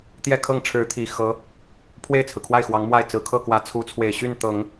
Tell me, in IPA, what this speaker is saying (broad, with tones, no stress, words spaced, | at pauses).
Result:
t̪jɛ˥˧kʰɤ˥˩ŋʈ͡ʂʰɻ̩˧˥t̪ʰi˨˩ xɤ˧˥ | pʰwe˥˩ɪ̯t͡sʰɹ̩˩ kʰwa˥˩ɪ̯xwɑ˧˥ŋmwa˥˩ɪ̯ t͡sɹ̩˨˩ kʰɤ˥˩kwä˧˥ t͡sʰu˧˥t͡sʰwe˨˩ɪ̯ɕy˥˩n t̪ɤ˨˩˦ŋ